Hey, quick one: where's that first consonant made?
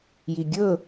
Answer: palate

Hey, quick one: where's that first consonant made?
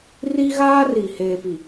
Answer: tongue tip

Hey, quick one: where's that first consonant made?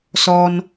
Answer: tongue tip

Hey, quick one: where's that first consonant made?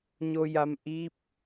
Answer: palate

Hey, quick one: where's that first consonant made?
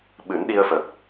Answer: lips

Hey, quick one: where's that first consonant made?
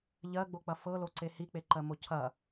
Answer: palate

